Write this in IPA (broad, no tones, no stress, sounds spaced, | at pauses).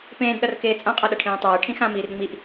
p ẽː d ɗ ʌ r k eː t͡sʼ ã qʼ a ɗ ʌ ʈʰ ẽː tˤ eː ʈʰ ĩ x ã m iː r ŋ͡m i ʔ